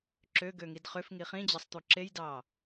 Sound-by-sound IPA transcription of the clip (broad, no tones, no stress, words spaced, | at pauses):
ǁøɡø ŋidχʏf ŋiχĩd͡ʑɑsˤt̪u ǁejdɑ